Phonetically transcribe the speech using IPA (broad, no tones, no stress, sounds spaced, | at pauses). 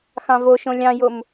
x ɑ̃ v o ʃ õ lʲ ɑ̃ j o m